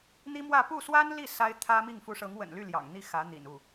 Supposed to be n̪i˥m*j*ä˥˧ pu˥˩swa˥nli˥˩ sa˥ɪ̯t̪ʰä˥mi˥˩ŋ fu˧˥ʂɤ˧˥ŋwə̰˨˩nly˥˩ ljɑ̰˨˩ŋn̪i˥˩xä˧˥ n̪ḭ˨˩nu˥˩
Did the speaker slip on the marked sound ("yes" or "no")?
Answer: yes